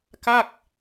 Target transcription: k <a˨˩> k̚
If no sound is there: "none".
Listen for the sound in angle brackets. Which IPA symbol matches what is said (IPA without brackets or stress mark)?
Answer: a˥˩